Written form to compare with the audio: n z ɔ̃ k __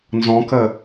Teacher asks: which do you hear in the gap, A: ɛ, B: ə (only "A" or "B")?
B